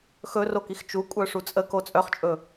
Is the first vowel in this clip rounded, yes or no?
yes